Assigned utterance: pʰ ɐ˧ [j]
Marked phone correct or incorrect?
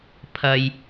correct